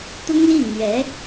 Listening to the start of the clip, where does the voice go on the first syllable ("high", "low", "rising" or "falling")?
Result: high